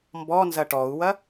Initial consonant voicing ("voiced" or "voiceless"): voiced